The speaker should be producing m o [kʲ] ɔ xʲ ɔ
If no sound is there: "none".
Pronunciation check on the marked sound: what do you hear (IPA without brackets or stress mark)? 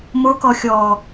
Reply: k